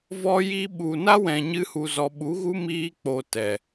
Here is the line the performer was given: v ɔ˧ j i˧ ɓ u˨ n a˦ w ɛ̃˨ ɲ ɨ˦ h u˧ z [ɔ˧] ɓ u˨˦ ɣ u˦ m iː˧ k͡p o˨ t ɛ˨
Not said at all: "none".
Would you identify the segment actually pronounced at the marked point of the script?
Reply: ɔ˧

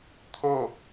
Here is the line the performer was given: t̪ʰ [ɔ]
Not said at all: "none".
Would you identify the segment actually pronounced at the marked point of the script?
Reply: o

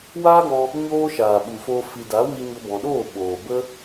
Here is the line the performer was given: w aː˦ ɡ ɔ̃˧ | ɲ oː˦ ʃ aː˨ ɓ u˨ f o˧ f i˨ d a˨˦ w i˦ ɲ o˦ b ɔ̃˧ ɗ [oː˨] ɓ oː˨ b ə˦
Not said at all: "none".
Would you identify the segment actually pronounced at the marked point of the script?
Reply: oː˦˨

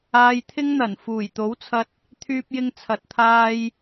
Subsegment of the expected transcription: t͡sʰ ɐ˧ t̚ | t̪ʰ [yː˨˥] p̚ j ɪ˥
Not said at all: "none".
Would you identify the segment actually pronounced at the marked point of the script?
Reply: yː˥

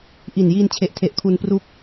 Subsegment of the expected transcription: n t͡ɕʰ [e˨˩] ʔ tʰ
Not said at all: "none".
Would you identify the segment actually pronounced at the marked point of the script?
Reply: e˨˩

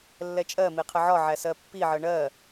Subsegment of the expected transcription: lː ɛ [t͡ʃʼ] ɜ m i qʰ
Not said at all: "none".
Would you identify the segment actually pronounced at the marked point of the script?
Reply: t͡ʃʼ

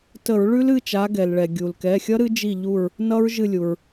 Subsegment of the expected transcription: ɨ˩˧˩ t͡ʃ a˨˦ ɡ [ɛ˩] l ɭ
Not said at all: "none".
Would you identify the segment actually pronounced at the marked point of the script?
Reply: ɛ˩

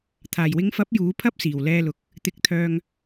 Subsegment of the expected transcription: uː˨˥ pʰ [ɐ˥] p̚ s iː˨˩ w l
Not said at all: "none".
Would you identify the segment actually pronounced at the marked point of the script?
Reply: ɐ˥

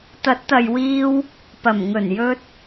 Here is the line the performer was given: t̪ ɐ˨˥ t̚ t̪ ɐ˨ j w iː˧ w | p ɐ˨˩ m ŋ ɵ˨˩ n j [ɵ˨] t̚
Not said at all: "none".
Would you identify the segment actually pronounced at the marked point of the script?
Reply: ɵ˧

